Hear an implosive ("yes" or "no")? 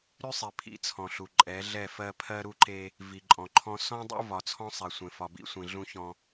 no